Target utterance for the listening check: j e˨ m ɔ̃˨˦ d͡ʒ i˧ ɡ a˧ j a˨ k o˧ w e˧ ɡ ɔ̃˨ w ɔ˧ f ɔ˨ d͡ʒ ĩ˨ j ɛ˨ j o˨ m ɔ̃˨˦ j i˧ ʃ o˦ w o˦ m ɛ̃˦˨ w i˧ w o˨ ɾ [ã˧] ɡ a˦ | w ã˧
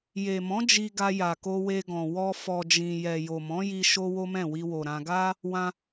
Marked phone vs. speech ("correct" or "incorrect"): correct